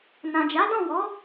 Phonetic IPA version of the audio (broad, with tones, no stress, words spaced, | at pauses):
nã˨d͡ʒa˨˦dɔ̃˦˨wɔ˨˦